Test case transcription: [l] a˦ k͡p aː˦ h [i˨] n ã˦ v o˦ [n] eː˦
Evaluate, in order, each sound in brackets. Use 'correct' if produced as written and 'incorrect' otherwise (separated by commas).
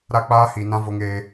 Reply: incorrect, correct, incorrect